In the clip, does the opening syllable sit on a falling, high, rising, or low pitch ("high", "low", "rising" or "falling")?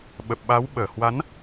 low